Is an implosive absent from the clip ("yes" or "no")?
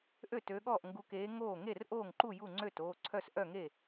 no